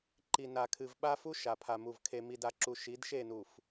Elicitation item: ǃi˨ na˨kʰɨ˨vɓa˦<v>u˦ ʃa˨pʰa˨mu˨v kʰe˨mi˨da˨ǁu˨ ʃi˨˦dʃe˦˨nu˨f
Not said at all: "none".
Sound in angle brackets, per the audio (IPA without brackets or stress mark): f